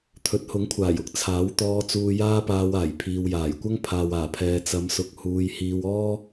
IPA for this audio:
t̪ʰɵ˨˥t̚hʊ˨˥ŋkʷʰaː˨˩jʊ˨k̚ t͡sʰaː˨˥wt̪ɔː˧ t͡suː˧jaː˥paː˧w aː˨˩jpʰiː˨wjaː˨˩jkʷɐ˥ŋ pʰaː˨waː˨˩pʰɛː˨ t͡sɐ˨˧msʊ˨k̚ huː˧j hiː˧wɔː˥

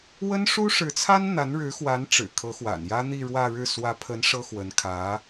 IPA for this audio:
wə˥nʂu˥ʂɻ̩˧˥t͡sʰa˥n n̪a˧˥nɻɻ̩˧˥xwa˧˥nʈ͡ʂɻ̩˨˩ kʰɤ˧˥xwa̰˨˩njä˥ n̪i˥˧ɻwä˥˧ɻɻ̩˥˩ swä˧˥pʰə˧˥n ʂɤ˥ xwə˧˥nkʰä˧˥

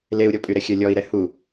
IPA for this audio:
leu̯ɾʲɔpʼyɾɛ xʲœlʲɔi̯ɾɛ hu

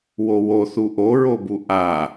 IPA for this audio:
wowoθu ʔoɹobu ʔa

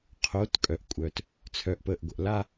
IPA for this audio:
qʰo˨˦tkʼœ˨ʔkʷʼœ˨t | t͡sʰœ˨ʔpəː˨ʔɡʷə˨ʔ la˦

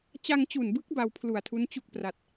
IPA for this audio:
t͡ɕa˧ŋt͡ɕu˨˩nbɯ˦˥k̚ ba˧wpʰlu˨˩a̯tʰu˦˥n t͡ɕu˥˩k̚pra˨˩t̚

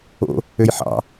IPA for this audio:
o̰ | øjħɑ̰

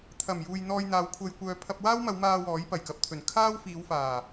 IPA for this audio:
t̪ʰɐ˨˩mjuː˨j n̪ɔː˧jn̪aː˨˧wkʷʰɐ˧jkʷœː˧ pʰɐ˧p̚waː˥wmɐ˨˧wmaː˧ wɔː˨˥jpɐ˨˩jkɐ˨p̚t̪ʰɵ˨˩n kʰaː˥wfiː˨˧wfaː˨˩

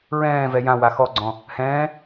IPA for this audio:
ɹɛ̃ːvɛ jã waxɔɡ͡ǀɔ̃ | hɛ̃ː

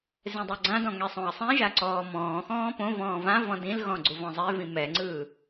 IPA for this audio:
zẽdˤɯɡ͡ǀãdɔ̃ ŋɛsˤõɐ̯sˤĩʒa ǀɔːmɔ̃ːxɔ̃ː põvɔ̃ː vã vɔ̃dĩlɣɔ̃ ɡ͡ǀuvɔ̃zˤevĩ mɛŋ͡ǀɯː

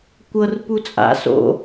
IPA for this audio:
kʷɤr put͡sʼa̰ so̰

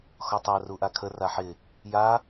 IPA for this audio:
xɔtˤa ruʔakʰə raħɪ | ja

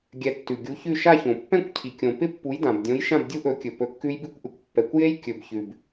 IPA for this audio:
ɡʲɛ˨˥tːʉ˨ɡʲu˨˥çʉ˥˨ ʃa˥˨çõ˨ pːɛ̃˥˨kʷcʰi˨kʲõ˨pɪ˦˥ pːu˨˥jdã˨bdʲõ˨˥jʃã˥˨b dʲu˦˥ʔɵ˨˥kʲɵ˨ pɵ˨˥kːʉ˦˥jbi˦˥kʷʔʉ˨kʷ pːɛ˨kʷje˦˥j kʲɵ˨bçʉ˨b

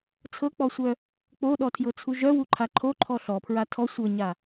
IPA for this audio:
t͡sʰɤk͡pɔsʷœ | k͡poɗɔtʰjɤt͡sʰu ʒœwuǃʰa ǃʰoǃʰɔ ɬɔpʰɹa tʰɔ sʷɤɲa

